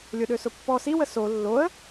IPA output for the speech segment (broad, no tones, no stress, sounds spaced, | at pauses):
lʲ ʊ ɗ ø s ʊ pː ɔ s i w ə s o lː o ə̯